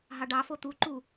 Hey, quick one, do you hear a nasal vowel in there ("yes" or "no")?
no